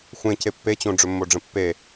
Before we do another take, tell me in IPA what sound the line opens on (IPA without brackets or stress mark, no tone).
xʷ